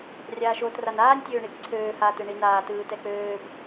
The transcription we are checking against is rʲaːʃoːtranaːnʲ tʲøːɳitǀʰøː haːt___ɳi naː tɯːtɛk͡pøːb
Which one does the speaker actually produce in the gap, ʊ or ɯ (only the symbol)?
ɯ